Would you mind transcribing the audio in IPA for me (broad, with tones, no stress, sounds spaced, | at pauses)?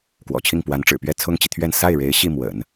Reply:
k w ɔ̰˨˩ t͡ɕʰ i˥˩ ŋ p w a˧˥ n ʈ͡ʂ ɻ̩˨˩ p ɥ ɛ˥˩ t͡sʰ ʊ˥ ŋ t͡ɕ i˨ t̪ʰ ɥ ɛ˥˧ n s a˥˩ ɪ̯ ɻ e˧˥ ɪ̯ ɕ i˥˩ m w ə̰˨˩˦ n